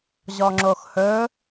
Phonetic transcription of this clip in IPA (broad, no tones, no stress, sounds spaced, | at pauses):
ʑ ɔ ŋ͡ǁ o x h ɵ